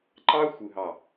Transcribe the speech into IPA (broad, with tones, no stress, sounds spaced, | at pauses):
ǃ ɑ˦ xʷ ɯ˨ ɦ ɑ˨